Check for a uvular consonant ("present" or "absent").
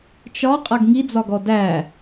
present